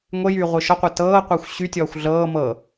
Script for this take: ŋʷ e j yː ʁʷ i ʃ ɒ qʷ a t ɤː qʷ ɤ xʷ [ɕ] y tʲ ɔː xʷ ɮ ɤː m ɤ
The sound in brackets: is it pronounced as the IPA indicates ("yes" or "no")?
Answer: yes